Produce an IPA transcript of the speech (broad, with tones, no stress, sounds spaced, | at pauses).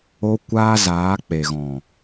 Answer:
o˦ kʷ aː˦ z aː˨˦ k͡p e˨ ɣ ɔ̃˨